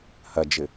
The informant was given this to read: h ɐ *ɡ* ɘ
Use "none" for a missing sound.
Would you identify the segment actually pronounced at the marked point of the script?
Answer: d͡ʒ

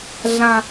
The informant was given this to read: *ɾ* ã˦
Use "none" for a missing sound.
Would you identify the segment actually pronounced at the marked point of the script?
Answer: ɮ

